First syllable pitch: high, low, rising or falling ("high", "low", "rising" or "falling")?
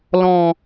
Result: low